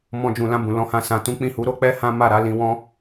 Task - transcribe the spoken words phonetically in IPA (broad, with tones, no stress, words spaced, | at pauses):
mɔ̃˧d͡ʒũ˨lã˧ bũ˨lɔ̃˨˦hã˧ sã˨tũ˨˦k͡pĩ˦˨hu˨˦ ɾo˦k͡pɛ˦ hã˦ma˦˨ɾa˨˦ lĩ˧wɔ̃˦